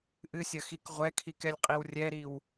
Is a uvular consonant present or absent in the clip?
present